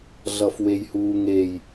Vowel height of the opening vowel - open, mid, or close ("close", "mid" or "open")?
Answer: mid